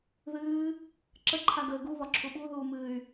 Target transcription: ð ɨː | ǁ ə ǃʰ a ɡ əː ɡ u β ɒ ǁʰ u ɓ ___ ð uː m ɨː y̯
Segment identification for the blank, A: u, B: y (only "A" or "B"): A